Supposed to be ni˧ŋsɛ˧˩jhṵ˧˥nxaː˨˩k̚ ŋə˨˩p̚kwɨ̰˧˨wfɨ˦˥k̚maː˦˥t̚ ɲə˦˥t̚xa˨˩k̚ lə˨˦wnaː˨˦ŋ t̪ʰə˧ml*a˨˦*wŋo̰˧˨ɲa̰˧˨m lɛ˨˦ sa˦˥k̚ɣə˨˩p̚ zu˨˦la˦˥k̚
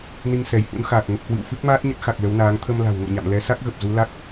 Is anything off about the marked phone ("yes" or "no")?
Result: yes